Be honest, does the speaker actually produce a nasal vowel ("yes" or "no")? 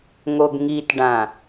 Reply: yes